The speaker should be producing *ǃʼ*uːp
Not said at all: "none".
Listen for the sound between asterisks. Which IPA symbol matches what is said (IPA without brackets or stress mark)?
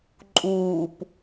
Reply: ǃʼ